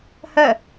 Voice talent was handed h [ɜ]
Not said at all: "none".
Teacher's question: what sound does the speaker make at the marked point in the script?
ɜ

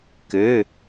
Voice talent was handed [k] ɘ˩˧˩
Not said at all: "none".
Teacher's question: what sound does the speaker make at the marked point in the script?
k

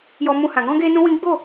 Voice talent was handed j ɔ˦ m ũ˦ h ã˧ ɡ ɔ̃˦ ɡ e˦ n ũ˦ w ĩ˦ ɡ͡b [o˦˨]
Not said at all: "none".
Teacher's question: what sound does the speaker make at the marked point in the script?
o˦˨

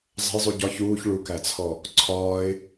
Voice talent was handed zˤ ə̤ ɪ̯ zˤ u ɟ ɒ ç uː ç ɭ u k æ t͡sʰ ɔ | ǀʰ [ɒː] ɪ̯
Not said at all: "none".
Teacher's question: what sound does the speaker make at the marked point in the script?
ɒː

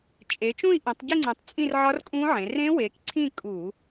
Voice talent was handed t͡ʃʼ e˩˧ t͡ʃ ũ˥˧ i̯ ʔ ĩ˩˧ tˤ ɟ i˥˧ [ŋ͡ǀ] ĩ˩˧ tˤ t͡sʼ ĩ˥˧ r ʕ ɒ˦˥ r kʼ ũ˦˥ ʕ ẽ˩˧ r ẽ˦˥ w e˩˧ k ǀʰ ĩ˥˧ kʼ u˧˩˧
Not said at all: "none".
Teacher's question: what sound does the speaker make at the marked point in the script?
ŋ͡ǀ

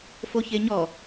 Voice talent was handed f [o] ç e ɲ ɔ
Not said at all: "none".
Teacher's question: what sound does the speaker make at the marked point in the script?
o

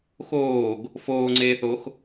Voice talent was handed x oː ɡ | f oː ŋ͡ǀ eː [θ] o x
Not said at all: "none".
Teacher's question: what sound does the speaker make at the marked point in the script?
θ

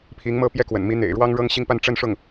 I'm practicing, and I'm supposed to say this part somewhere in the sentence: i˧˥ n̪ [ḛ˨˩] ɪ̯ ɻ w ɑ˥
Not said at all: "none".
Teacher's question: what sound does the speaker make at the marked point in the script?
ḛ˨˩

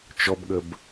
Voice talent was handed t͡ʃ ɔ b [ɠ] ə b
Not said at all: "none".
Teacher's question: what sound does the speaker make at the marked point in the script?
ɠ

